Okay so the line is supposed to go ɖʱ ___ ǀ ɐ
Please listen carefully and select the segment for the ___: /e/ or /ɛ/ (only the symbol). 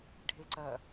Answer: e